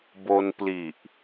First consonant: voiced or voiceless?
voiced